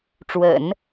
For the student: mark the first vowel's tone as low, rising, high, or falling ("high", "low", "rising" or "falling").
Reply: low